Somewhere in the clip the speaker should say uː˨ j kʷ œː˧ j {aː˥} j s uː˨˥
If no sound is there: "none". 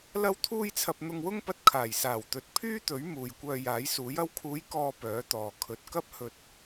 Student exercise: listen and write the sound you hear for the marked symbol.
aː˨˥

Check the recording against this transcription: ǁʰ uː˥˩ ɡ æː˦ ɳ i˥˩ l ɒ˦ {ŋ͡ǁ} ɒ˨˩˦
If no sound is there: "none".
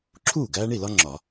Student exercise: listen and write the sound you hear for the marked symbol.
ŋ͡ǁ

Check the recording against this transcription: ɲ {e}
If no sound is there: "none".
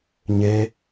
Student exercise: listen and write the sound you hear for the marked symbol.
e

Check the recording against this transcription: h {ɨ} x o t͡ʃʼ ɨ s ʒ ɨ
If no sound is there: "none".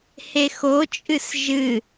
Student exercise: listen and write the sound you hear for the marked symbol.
e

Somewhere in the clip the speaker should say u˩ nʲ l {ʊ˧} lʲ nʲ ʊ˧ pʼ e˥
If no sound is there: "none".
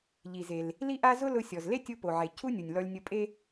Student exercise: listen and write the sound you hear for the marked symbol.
ɔ˧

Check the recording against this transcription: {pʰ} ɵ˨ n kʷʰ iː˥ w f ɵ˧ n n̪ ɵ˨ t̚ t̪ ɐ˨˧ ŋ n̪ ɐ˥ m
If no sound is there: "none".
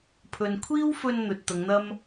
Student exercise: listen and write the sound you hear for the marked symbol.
pʰ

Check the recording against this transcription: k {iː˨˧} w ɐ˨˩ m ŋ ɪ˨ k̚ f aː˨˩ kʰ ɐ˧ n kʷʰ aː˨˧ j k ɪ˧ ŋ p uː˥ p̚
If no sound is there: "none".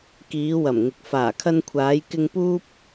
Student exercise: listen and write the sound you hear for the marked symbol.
iː˨˧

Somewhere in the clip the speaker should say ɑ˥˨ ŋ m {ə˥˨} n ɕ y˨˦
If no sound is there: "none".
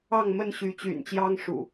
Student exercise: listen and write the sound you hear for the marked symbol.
ə˥˨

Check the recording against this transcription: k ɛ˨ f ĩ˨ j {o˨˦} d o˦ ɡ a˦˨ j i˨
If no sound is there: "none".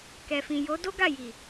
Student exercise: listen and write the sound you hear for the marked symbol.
o˨˦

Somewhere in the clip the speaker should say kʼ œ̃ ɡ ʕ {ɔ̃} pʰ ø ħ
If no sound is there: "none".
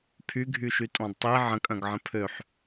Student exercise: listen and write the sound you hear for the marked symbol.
ə̃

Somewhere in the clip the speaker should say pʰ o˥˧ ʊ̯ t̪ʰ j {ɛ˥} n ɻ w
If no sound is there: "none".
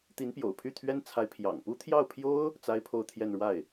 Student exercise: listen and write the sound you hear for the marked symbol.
ɛ˥˧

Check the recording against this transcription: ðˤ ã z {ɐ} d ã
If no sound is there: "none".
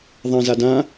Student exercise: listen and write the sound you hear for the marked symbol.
a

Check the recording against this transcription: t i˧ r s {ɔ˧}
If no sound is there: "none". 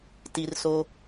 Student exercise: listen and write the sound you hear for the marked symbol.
o˧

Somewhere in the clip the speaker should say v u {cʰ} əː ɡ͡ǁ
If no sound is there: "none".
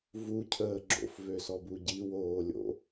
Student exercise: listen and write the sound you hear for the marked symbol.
cʰ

